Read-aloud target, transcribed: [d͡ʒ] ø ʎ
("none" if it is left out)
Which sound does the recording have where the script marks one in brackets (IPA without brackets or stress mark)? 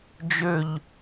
d͡ʒ